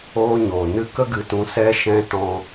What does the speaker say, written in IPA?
oː˦ ɲ oː˨ n ɨ˦ k ə˦ ɡ ɨ˨ t ũ˨˦ s ɛ˦ ʃ ɛ̃˦ t ɔ̃˧

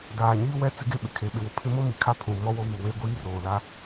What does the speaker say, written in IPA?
d aː˨ ɲ iː˦ w ɛ˦ t͡s ɪ˦ ɡ e˦ ɓ ɪ˨ kʰ e˨ ɓ ɪ˨ w ʊ˦ pʰ ɪ˦ m o˦ m i˨ kʰ a˦ pʰ ũ˨ m ɔ˦ w o˦ β u˨ w e˦ ɡʷ iː˦ r oː˨ l a˦

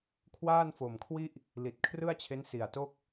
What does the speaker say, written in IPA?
kʰ w aː˥˩ n f o˨˩ m kʰ w i˥˩ ʔ | l i˨˩ t̚ kʰ r ɯ˥˩ a̯ t͡ɕʰ e˦˥ n s i˨˩ a̯ t o˥˩ k̚

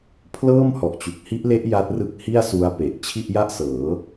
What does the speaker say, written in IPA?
pʰ l ɤː˥˩ m h ɔ˨˩ ʔ t͡ɕ u˨˩ k̚ h i˦˥ ʔ l e˦˥ ʔ j a˦˥ t̚ r ɯ˦˥ k̚ h i˥˩ a̯ s u˦˥ a̯ p e˨˩ ʔ t͡ɕʰ i˥˩ ʔ j a˥˩ ʔ s ɤː˩˦

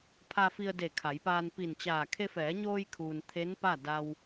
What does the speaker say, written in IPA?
pʰ a˧ f i˧ ə̯ d e˧˩ kʰ a˩˧ j p aː˧ n p i˧˩ n t͡ɕ aː˧˩ kʰ e˧ f ɛː˩˧ ɲ oː˧ j kʰ uː˩ n t̪ʰ e˧˥ n p a˥˨ d a˧ w

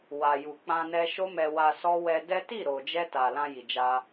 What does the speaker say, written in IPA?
w a˨ j u˨ k͡p ã˧ n ɛ˧ ʃ o˦ m ɛ˧ w a˧ s ɔ˦ w ɛ˧ d ɛ˦ t i˦˨ ɾ o˨ d͡ʒ ɛ˧ t a˨ l ã˧ j i˨ d͡ʒ a˧

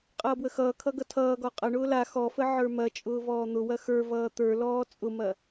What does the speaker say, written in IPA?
qʼ ʌː b w ə x ʌː kʰ ʌ ɡ ʌ tʰ ʌː ɡ ɔ qʼ ɐ ɳ ʊː l a x ɔ f ə ʕ ə˞ m ɐ t͡ʃʼ ʊː v ɔː n̪ ʊ w ɐ x ə˞ v ʌː t̪ ə˞ l ɔː t͡sʼ ʊ m ɐ

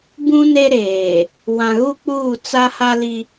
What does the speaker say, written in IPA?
b ũ˦ n e˦ ɾ eː˨ | w ã˨ ɣ u˦ k͡p uː˦˨ t͡s a˦ h a˦ l i˦

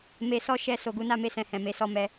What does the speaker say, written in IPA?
m e˧ s ɔ˦ ʃ ɛ˧ s o˨ ɡ u˨˦ n a˧ m e˧ s ɛ̃˨ h ɛ̃˨ m e˨˦ s ɔ˦˨ m ɛ˧

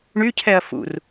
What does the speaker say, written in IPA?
ɳ y cʰ ɛ ɐ̯ f ṵ r

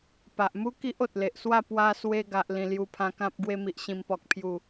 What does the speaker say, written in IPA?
p a˨ ʔ m u˦ k i˦ ʔ o˨ t̚ l e˨ ʔ s w a˥˧ p w a˧ s w e˧ ɡ a˨ ʔ l ĩ˨˩ l j u˧ pʰ ã˧ k ã˦ p̚ ɡ w e˧ m i˨ ʔ ɕ ĩ˨˩ m p ɔ˨ k̚ pʰ j u˨˩

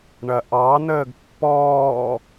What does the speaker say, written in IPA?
ɳ ɐ ʔ ɑ n əː ɡ pː ɔː

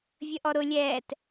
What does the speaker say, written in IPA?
vʲ ə ʔ ɔ ɾ ʊ lʲ ɛː t

